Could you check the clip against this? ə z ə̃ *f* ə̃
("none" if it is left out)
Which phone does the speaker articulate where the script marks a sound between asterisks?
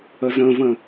v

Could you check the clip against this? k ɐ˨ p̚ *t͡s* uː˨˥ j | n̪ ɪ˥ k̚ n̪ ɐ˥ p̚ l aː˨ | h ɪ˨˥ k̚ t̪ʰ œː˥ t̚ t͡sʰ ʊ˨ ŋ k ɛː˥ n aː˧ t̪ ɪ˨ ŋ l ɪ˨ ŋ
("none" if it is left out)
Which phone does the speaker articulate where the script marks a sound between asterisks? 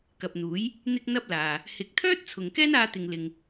n̪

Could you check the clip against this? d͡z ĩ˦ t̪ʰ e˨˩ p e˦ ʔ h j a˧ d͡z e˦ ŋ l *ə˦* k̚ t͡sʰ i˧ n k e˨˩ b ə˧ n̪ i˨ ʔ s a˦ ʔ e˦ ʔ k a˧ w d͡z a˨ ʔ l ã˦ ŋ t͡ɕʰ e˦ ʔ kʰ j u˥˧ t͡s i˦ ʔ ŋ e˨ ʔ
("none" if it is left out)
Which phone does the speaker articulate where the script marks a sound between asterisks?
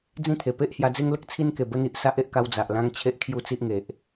ə˦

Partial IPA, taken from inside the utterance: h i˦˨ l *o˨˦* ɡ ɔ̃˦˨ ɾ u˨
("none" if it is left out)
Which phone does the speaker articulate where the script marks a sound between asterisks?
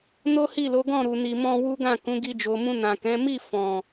o˨˦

